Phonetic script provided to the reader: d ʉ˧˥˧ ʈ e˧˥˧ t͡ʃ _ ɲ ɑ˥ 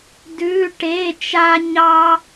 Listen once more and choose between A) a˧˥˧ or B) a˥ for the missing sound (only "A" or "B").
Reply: B